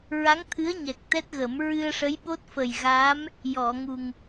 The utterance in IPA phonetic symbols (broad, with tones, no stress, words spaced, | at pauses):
ɹa˧˥ŋt̪ʰɨ˧˥ə̯ ɲɛ˨˩k̚t̪ɛ˦˥t̚ɣə˨˩˦m ɹɨ˧ə̯ʂə˧˥jɓo˦˥t̚ fə˨˩jɣa˧˥m | jɔ˨˩˨ŋu˨˩ŋ